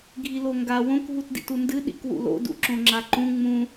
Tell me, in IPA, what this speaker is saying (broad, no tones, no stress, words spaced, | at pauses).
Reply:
ɡʱiloŋɡa wõk ɦutdḭtundɨ ɗḭkwṵlo̰ dṵǁõŋ͡ǁaǃũ ŋ͡mũ